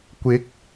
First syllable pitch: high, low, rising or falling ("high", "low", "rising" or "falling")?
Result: rising